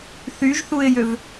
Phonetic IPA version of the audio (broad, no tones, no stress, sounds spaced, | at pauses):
θ y ʒ θ u ɪ̯ j ø v